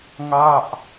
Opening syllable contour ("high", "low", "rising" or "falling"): falling